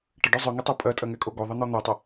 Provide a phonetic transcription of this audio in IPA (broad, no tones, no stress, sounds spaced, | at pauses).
ʈ ə ɖ œ zˤ œ ŋ ɛ tˤ ɜ pʼ ɜ tʼ ɜ ŋ ɛ kʼ o ɡ o ðˤ ə n̪ ɔ n̪ œ tˤ ə